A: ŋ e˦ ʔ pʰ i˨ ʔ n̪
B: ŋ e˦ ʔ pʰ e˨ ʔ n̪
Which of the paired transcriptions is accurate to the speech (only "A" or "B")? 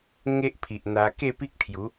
A